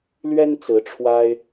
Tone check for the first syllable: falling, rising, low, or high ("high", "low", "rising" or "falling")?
high